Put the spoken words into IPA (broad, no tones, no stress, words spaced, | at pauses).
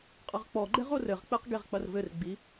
qʼɐʁk͡pɔɡ͡ǃɛʁ orɘʁk͡peq ɡeʁk͡pɐrvɘrɡ͡bi